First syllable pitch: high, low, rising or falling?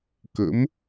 rising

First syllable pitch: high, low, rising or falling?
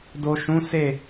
low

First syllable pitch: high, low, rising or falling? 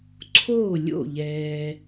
falling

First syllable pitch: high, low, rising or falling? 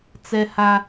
high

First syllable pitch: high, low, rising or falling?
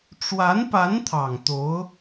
rising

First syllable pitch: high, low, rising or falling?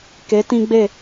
rising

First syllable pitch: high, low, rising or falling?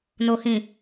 low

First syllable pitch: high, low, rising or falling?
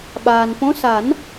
low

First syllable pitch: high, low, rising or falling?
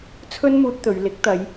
high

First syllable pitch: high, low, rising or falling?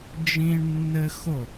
high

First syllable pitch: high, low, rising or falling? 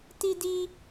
high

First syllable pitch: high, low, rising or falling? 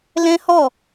high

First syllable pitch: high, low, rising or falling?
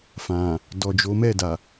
low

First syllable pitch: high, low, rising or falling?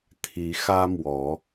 rising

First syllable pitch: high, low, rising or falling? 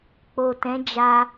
low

